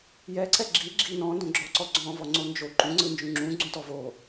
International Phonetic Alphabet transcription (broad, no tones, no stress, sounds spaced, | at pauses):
j ɛ ǀ ɛ ɡ͡ǁ i ɡ͡ǁ i n ɔ̃ n d õ ɡ͡ǁ ɔ ǀ ɔ ɡ͡ǀ ɔ̃ v ɔ ŋ͡ǀ o n d͡ʒ o ǃ ũ ŋ͡ǀ ɯ n d͡ʒ ũ ŋ͡ǁ ũ ɡ͡ǀ ũ t ɔ v o